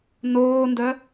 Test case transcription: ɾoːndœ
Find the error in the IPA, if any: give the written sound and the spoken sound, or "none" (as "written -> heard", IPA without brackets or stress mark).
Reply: ɾ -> n